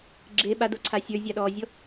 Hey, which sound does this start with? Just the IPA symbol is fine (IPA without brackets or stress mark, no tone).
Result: ɡ͡ǁ